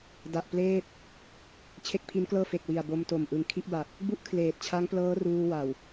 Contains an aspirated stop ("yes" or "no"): yes